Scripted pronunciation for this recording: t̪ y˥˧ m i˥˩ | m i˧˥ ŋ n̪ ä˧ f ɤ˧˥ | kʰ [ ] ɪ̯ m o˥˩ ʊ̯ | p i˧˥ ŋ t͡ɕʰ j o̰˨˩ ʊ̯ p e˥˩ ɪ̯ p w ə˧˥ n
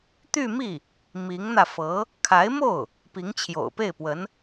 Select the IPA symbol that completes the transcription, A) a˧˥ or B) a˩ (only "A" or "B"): A